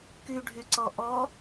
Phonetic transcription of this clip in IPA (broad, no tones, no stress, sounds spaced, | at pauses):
k y ɖʱ y ǀ ɔ ʔ ɔ